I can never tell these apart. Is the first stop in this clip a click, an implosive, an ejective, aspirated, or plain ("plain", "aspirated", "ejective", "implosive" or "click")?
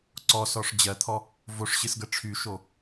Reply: click